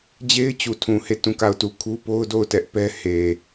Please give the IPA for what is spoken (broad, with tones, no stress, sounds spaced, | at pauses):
d͡ʑ e˦ ɪ̯ t͡ɕ u˨ tʰ ũ˨ h e˦˨ t ũ˦˨ k a˦˨ ʊ̯ t u˦˨ kʰ u˦ p o˦ ʊ̯ d o˦˨ ʊ̯ t ɛ˦ ʔ p ɛ˦ h e˨